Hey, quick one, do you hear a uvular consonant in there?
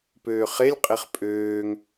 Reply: yes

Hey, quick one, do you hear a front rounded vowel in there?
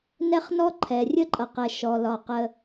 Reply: no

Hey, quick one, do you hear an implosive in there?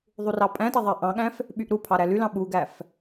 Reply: yes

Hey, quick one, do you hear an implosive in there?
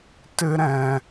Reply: no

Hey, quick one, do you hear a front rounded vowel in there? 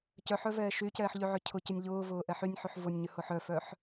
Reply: yes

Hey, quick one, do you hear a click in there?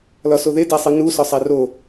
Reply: no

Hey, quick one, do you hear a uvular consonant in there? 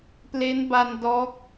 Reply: no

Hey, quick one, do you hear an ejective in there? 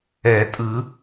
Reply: yes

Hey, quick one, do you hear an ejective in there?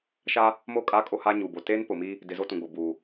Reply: yes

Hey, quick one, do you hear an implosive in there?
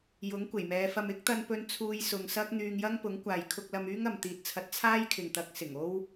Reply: no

